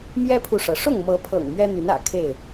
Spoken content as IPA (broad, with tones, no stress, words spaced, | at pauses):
mjɛ˦pʰu˨ʂɤ˩ ʂʊ˥˨ŋmɤ˨˦pʰɤ̰˨˩ŋ mɥɛ˦n̪y˨˦nä̰˨˩ kʰe˥˨ɪ̯